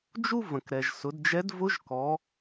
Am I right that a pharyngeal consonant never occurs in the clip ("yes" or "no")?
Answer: yes